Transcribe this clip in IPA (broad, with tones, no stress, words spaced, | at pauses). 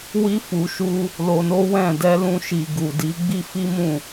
wi˧fu˨ʃu˧ | lo˧no˦wɛ̃˦˨ dɛ˧lũ˧ ʃi˨ ɡu˨di˨˦ɡ͡bi˦ fi˦mũ˦˨